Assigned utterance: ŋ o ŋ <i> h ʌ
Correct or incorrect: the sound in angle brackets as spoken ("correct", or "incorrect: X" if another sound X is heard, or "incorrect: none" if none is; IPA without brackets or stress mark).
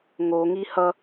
correct